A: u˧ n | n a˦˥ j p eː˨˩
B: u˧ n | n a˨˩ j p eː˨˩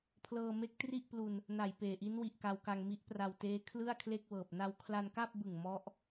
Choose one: B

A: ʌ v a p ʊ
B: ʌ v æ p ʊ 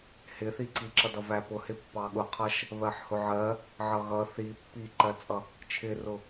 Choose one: B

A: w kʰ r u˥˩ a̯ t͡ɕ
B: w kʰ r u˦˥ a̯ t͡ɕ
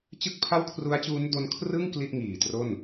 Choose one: B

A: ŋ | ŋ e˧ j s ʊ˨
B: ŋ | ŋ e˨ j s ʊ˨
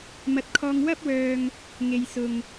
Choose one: B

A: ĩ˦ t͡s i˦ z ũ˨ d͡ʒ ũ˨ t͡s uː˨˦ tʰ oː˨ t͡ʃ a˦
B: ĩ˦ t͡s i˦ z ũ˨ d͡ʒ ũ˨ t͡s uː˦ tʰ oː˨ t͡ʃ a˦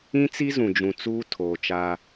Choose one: B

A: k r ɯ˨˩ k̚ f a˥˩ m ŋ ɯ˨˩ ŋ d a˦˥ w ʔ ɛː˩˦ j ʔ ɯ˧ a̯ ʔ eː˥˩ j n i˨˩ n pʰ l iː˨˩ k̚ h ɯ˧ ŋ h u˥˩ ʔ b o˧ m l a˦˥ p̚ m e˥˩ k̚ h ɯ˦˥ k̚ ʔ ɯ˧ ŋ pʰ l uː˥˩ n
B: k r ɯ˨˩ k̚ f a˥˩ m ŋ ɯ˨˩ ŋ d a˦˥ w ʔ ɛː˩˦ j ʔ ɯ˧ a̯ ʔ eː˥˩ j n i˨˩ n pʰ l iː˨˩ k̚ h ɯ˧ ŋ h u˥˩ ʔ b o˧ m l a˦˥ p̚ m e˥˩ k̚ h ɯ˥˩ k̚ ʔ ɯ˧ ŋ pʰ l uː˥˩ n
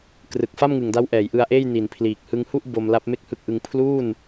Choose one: A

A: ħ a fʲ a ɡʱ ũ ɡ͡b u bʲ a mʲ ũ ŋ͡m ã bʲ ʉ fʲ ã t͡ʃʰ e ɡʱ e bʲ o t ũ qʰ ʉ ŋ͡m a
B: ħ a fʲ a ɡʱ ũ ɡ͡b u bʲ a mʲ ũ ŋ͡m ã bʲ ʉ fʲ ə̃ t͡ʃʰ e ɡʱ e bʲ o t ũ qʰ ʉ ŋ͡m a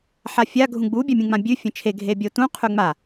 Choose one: B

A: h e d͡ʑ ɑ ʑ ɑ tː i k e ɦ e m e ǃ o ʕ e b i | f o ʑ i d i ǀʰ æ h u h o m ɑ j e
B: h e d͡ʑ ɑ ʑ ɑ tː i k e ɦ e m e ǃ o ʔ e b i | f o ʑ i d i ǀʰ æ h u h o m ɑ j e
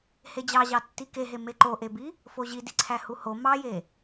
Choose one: B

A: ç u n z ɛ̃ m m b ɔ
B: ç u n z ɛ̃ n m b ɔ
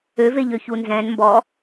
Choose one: B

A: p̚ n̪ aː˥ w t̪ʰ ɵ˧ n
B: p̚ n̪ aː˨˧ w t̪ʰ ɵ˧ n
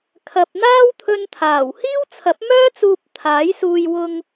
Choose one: A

